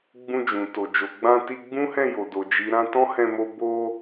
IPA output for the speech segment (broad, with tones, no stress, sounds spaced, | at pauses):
ɡ͡b ũ˧ d͡ʒ ũ˨ t o˨ d͡ʒ o˨ ɡ͡b ã˧ t i˧ ɡ͡b ũ˦ h ɛ̃˦˨ j o˨ d o˨ d͡ʒ i˨ ɾ ã˧ t ɔ̃˦ h ɛ̃˧ m o˧ b o˧